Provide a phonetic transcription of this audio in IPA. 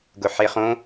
ɡ ʊ ħ e χ õ

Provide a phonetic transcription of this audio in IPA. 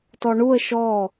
t ɔ ɳ u ə̯ ʃ ɔ

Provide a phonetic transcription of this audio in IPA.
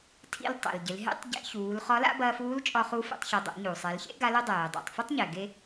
tʰ ḭ˧ l tˤ ḛ˩ l ɟ ɪ˩˧ l ɦ ḛ˧˥ tˤ ɟ ḛ˧ ç uː˩˧ l χ ɒ˧˥ l a̰˥ b ɐː˧ f uː˧˥ l t͡ʃʼ ɒ˧ χ u˧˥ f ḛ˧ tˤ ç ɘ˩˧ dˤ ḛ˩˧ ɲ u˩ sˤ e˩˧ l ç ḛ˥ ɡ a˧˥ l ɘ˥ dˤ eː˩ dˤ a̰˩ tˤ f ɘ˥ tˤ ɲ ɛ˩ ɡ e˧

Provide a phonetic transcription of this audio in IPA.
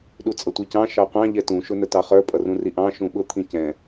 ɗ u t͡sʼ ʌ tʷ i c ɑ̃ ʃ ɑ qʷ ɑ̃ ʎ ɛ t ũ ʃ ʊ n ə t ɑ χ ə˞ pʼ ʌ r ũ r i ʔ ɑ̃ ʃ ũ ɓ ʊ t̪ʰ ĩ c ɛ̃

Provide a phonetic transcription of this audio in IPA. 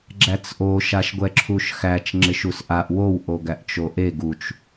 ɡ͡ǁ æ t͡s ʔ o ʃ a ʃ ɡʷ ɛ ǁʰ u ʃ x æ t͡ʃ ŋ͡ǁ ɪ ʃ u s ʔ a ʔ w o w ʔ o ɡ æ ʔ t͡ʃ o ʔ e ɡ u t͡ʃ

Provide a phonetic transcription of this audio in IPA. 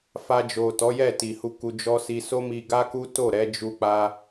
f a˧ d͡ʒ o˨ t ɔ˨˦ j ɛ˦˨ t i˨ h u˧ k u˧ d͡ʒ ɔ˦ s i˧ s o˦ m i˧ ɡ a˦ k u˦ t o˦˨ ɾ ɛ˨˦ d͡ʒ u˦ k͡p a˦

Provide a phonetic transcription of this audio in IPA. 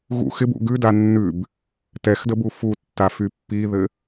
ɣ ṵ x ɪ b ṵ ɡ ʉ d a nː ʉ b | t ɛ x d ə b u f u tː a f y pː i ð ɘ

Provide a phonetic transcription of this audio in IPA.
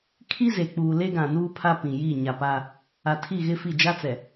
kʰ i˦ z e˨ k͡p uː˨ l e˦ ɡ ã˨ n uː˦ pʰ a˦ p ĩ˨ j i˦˨ ɲ a˨ p a˦ | a˨ tʰ i˦˨ ɣ ɪ˦ f i˦˨ d͡ʒ a˦ t͡s ɛ˨

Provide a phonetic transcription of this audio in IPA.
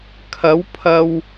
kʰ ɐ˨˥ w pʰ ɐ˨ w

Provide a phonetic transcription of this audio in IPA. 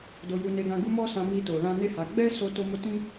d o˧ j u˧ n e˧ ɡ ã˧ ɡ u˦ m ɔ˦ s ã˧ m i˧ t o˨ l ã˧ n e˦ h a˧ ɡ͡b ɛ˦ s o˦ t o˦ m o˦ t ĩ˦

